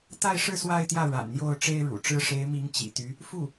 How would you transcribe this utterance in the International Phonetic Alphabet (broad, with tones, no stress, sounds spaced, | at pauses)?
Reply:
t̪ a˥˧ ɪ̯ ʂ ɻ̩˥˧ s w a˥˧ ɪ̯ t̪ j ä˥˩ ɻ a̰˨˩ n n̪ j o˥˩ ʊ̯ ʈ͡ʂ e˥ ɪ̯ ɻ ṵ˨˩ ʈ͡ʂ ɻ̩˥ ʂ e˧˥ ɪ̯ m i˧˥ ŋ t͡ɕ ḭ˨˩ t̪ y˧˥ | f u˥˩